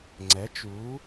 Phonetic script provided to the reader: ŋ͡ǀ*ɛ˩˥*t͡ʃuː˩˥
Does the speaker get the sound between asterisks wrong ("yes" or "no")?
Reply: no